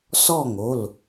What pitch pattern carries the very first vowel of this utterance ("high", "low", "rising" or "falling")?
falling